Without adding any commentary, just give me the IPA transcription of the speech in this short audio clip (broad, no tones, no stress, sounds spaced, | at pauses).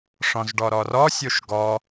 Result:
ʂ ɔ̃ z ɖ ɔ ɾ ɔ r ɔ sʲ o ʃ ɡ ɔ